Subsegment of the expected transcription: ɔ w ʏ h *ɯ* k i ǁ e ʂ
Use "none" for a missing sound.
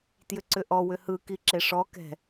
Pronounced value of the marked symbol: ɯ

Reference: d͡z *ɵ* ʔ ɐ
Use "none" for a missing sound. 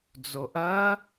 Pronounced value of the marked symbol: o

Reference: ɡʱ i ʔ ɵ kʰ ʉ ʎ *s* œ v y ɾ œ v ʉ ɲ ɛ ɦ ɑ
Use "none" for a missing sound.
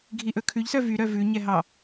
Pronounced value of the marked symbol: s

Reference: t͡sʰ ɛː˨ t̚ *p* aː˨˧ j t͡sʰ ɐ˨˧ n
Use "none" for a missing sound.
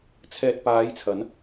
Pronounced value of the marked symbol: p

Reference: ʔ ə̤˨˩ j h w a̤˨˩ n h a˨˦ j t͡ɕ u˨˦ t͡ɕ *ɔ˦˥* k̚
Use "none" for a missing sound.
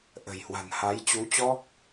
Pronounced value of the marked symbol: ɔ˦˥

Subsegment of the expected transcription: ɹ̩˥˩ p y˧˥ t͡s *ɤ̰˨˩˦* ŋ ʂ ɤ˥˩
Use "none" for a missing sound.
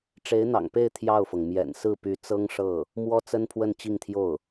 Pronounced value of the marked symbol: ɤ˥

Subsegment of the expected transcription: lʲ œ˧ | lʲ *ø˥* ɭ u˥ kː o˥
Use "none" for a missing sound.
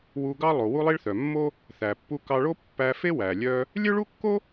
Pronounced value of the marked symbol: ø˥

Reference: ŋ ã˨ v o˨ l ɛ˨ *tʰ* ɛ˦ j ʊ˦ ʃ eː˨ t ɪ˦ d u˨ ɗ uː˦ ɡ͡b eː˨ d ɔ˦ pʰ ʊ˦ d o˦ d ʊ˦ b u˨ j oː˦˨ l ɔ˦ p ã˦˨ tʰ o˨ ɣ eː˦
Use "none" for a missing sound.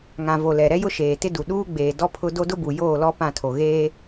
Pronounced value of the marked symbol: ɾ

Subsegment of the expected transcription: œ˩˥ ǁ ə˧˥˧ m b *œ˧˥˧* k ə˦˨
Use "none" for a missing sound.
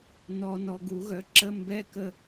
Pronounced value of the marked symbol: ɛ˧˥˧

